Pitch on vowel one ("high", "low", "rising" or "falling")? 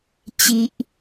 high